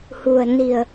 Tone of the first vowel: low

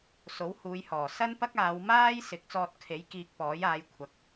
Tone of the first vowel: rising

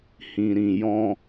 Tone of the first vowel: low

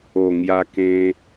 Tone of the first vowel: low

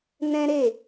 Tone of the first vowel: high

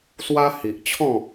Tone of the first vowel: high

